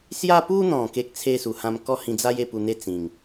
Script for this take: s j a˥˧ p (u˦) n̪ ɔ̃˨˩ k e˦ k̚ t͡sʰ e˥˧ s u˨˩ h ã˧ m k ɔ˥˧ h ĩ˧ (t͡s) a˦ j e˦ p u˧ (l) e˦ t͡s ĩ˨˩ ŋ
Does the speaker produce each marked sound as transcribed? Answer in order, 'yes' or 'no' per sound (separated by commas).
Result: yes, no, no